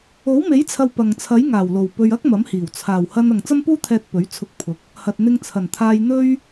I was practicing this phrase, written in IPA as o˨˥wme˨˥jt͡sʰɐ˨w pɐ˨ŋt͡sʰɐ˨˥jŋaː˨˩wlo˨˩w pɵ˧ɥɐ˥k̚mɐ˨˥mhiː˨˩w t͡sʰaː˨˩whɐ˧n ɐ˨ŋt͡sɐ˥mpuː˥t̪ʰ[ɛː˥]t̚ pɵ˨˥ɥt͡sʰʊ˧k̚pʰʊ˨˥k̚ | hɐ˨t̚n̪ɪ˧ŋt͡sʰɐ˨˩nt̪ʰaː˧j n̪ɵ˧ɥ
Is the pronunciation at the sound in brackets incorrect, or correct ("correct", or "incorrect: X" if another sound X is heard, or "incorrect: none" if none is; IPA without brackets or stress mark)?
incorrect: ɛː˧